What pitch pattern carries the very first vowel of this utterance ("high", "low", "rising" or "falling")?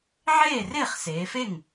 falling